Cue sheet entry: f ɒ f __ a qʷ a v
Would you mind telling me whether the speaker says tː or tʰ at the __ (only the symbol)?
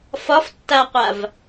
tː